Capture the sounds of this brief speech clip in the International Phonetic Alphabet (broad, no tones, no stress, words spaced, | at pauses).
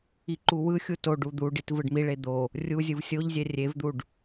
iǃuwɯxʲu to ɖud̪uɖit vɯɖmiɭe d̪o | rʲu zʲɯvsʲoʎzʲɛ rʲevd̪uɖ